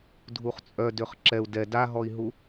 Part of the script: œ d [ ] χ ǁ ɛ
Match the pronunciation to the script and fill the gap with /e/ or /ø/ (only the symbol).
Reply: ø